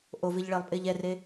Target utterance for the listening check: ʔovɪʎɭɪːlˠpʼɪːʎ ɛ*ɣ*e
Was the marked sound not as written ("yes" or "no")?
yes